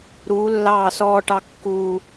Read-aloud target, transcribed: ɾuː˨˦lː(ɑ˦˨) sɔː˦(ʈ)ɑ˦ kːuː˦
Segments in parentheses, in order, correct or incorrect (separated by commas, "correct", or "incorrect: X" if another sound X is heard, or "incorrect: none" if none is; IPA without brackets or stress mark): incorrect: ɑː˦˨, correct